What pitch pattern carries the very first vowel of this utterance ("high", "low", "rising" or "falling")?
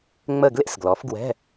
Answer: falling